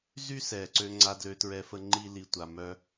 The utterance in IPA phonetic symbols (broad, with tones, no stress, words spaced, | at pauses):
zy˦sɛ˨ǀø˧ ŋ͡ǀa˧dlø˧tɹɛ˧fə˧ ŋ͡ǃi˦li˧ tʷa˧mœ˦